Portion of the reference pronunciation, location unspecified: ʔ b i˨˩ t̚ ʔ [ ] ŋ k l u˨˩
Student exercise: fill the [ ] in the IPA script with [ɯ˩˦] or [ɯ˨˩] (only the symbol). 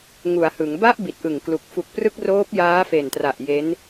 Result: ɯ˨˩